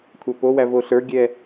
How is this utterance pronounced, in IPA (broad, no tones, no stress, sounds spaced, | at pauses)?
kʷʰ æ p o w æ v o ɬ ə˞ ɡʲ ɛ